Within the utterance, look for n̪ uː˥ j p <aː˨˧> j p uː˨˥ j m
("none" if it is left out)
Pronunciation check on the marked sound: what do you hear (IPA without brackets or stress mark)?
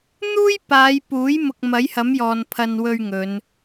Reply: aː˨˧